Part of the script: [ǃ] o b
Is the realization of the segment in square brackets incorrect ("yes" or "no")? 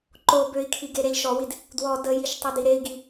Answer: no